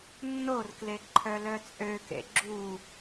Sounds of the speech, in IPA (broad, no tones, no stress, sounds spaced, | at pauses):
nː o r k l e ǃʰ œ l œ t͡sʼ ø k ḛ ɡ͡ǁ u